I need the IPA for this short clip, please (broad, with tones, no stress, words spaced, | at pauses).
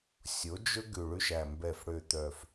sʲo˩˥ d͡ʒɵ˦ ɡʉ˨˩ɭʉ˦ʃæ˨˩ mbɛ˨˩fɽø˨˩t̪œ˨˩f